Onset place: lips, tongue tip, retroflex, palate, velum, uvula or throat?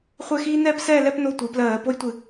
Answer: uvula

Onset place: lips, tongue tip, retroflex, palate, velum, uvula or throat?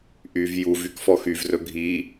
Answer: throat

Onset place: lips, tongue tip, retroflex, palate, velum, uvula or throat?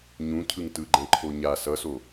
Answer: palate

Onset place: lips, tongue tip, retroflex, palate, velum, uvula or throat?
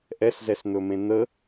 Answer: throat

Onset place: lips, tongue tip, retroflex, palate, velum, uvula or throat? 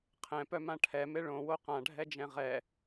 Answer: uvula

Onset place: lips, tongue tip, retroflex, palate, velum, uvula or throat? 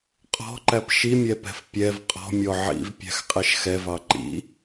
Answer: uvula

